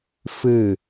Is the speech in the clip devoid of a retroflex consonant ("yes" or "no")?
yes